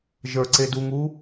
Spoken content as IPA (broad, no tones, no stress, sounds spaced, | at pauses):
ʒ ə˞ ǀ e d u ŋ uː